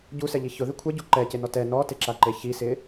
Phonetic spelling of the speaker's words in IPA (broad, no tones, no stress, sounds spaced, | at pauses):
ɟ u s ɛ ʎ i ç ʊ ð ɪ kʷʰ ɛ ɟ u ǃ ɛ c e n ɔ t ɛ n ɔ t e ǁ a ǃ e ç i s ɪ